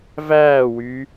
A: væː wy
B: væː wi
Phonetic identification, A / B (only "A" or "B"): A